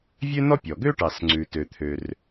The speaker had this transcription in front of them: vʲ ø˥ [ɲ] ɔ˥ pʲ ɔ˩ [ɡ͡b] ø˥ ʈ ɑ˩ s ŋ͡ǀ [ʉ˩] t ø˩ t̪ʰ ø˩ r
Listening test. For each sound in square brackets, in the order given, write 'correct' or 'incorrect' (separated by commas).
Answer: incorrect, incorrect, correct